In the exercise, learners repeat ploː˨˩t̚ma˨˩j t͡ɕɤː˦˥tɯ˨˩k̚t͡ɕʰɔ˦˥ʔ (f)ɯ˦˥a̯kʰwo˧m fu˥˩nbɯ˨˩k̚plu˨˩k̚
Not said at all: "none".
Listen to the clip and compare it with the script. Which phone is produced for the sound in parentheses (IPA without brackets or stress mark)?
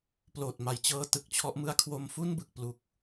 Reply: m